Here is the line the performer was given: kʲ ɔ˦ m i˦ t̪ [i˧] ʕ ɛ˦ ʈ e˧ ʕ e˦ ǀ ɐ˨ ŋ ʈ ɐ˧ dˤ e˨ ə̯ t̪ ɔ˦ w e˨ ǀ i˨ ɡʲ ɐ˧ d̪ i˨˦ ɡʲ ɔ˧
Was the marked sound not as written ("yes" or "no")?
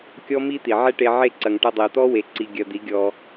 yes